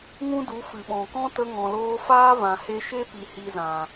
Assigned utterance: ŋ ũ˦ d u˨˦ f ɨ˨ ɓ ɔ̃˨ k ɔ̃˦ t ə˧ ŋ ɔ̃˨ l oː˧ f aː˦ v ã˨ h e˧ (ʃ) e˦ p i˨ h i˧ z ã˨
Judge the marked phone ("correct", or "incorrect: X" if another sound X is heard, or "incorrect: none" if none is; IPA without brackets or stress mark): correct